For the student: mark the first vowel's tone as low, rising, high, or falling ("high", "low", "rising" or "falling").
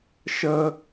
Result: high